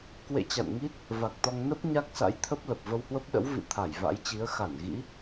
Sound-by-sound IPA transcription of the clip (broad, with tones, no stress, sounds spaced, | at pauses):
k w ḛ˧˨ t͡ɕ a̰˧˨ n ŋ i˦˥ t̚ | v a˨˩ k̚ t̪ ɔ˧ ŋ n ə˦˥ p̚ ɲ a˦˥ k̚ s a̰˧˥ j t̪ʰ ə˦˥ p̚ l ə˨˩ p̚ v ə˧ w h w ə˦˥ p̚ ɗ ə̰˧˥ w v ḭ˧˨ t̪ʰ a˧˩ j v a̰˧˥ j t͡ɕ i˨˦ ə̯ x a˧˩ n ɣ ḭ˧˥